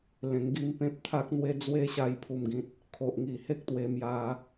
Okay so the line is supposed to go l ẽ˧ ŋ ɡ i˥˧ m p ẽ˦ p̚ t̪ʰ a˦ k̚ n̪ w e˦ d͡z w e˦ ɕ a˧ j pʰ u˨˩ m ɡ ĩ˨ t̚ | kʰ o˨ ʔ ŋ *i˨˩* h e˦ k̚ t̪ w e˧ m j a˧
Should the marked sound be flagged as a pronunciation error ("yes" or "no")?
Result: no